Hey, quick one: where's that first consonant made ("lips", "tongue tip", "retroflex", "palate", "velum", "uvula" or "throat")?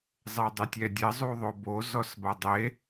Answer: tongue tip